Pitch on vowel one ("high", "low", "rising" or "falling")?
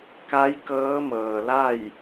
rising